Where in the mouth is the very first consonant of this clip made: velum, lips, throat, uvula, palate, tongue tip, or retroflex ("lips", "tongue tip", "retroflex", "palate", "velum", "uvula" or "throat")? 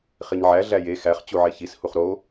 uvula